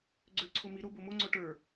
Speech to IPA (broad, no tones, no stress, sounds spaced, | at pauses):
ɡ͡ǀ ø ǀʰ o m i ɾ o b o m o ŋ͡ǀ o ʈ ə˞